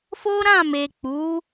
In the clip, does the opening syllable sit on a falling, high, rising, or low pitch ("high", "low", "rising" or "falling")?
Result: high